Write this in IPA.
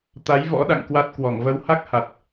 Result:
t̪ a˨˦ j v ɔ̰˧˥ ɗ a̰˧˨ ŋ k w a˦˥ t̚ k w ɔ˧˩ ŋ v ə˨˦ w h a˦˥ k̚ h a˨˩ t̚

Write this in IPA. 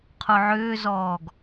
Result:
qʰ o ʕ ʏː z ɔː ɡ

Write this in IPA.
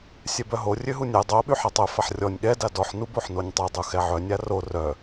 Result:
sʲ ɛ b œ ɦ o rʲ ø ɦ u nʲ ɛ dˤ o ɓ y ħ a tˤ œ f a ħ rʲ ɔ nʲ ɠ ɛ d a d ɔ ħ n u b o ħ n o nʲ tˤ œ dˤ u x ɛ ʕ œ nʲ a r o r œ

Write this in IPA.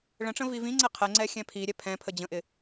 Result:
ɭ ə̃ ʈ͡ʂ ə̃ v i v ĩ ŋ͡ǀ ɛ qʰ ɛ ŋ͡ǀ ɛ xʲ ɛ̃ pʰ i ɾʲ ɛ pʰ ɛ̃ pʰ ə d͡ʑ ə̃ ʔ ɪ

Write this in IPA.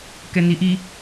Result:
k ɛ n i ʔ i

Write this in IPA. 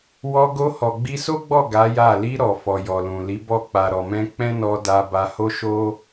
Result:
w ɔ˧ ɡ o˧ h ɔ˨ ɡ͡b i˧ s o˦ ɡ͡b ɔ˦˨ ɡ a˨˦ j a˦˨ l i˧ ɾ ɔ˨ f ɔ˨ j ɔ˨ l ũ˨ l i˨˦ b ɔ˦˨ k͡p a˨ ɾ ɔ˨ m ɛ̃˧ k͡p ɛ̃˦ n ɔ˧ d a˧ b a˧ h o˦ ʃ o˦

